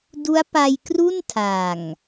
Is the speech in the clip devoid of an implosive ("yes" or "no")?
yes